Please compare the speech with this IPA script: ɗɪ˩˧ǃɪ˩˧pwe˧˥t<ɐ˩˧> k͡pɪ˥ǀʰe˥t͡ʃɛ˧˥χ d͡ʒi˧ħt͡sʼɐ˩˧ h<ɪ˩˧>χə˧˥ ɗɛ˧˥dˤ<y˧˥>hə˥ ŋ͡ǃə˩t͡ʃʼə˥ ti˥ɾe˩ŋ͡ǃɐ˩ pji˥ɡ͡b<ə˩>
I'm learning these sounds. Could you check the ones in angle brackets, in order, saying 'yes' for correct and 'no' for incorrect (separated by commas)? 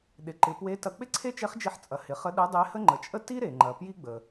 no, yes, no, yes